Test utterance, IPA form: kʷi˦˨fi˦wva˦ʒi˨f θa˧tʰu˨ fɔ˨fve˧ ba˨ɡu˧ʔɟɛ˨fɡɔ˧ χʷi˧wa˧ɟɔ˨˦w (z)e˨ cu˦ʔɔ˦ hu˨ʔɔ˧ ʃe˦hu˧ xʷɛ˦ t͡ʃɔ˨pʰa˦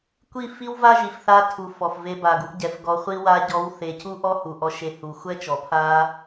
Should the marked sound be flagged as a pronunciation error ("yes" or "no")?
yes